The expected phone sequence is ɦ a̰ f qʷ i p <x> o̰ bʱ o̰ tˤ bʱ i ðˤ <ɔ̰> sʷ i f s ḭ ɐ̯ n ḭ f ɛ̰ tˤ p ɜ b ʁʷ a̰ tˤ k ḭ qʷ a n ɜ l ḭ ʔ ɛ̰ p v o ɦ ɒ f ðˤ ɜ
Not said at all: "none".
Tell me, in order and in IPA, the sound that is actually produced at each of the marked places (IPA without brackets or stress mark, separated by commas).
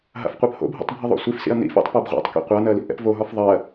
h, o̰